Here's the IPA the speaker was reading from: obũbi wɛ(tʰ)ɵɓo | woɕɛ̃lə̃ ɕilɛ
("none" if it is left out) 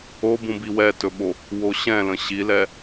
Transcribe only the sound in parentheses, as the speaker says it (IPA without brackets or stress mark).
t